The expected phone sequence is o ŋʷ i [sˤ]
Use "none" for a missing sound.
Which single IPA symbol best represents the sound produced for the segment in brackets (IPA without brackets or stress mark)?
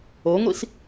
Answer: s